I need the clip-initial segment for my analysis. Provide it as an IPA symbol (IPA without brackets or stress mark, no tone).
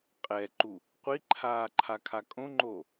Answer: qʼ